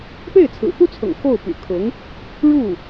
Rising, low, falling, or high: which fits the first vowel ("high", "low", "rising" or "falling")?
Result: falling